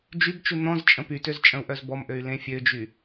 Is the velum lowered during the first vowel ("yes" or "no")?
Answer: no